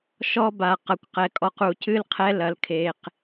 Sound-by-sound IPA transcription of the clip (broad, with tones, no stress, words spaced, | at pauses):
ʃɔ˦ba˨ qɐ˨kʷqɛ˨kʼɔ˨q u˨cɨ˦lqʰɛ˦ lɐ˨lkʰe˨q